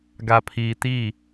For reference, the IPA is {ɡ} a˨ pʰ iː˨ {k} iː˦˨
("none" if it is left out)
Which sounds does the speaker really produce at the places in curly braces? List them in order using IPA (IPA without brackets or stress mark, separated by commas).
ɡ, t